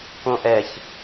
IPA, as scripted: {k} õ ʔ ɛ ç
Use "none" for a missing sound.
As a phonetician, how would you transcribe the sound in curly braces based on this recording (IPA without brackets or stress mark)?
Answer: k